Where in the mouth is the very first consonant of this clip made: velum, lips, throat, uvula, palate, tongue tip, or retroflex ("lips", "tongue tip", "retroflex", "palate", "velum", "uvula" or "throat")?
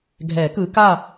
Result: velum